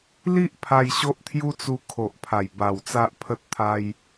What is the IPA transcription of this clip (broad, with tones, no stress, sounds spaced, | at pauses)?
l i˦ ʔ pʰ a˧ j ɕ o˦ ʔ t̪ʰ j u˦ t͡s u˧ kʰ o˨ ʔ pʰ a˨˩ j b a˨˩ w t͡s a˦ ʔ pʰ ə˦ t̚ t̪ʰ a˦ j